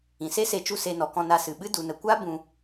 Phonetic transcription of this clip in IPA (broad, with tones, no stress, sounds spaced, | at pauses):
ĩ˨ s e˦ s e˧ t͡ʃ u˦˨ s e˧ n ɔ˨ k ɔ̃˧ n a˧ s ɨ˨ ɓ ɨ˦ d u˨ n ə˨ kʷ a˦ b ũ˧